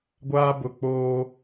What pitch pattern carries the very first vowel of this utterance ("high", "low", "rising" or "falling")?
high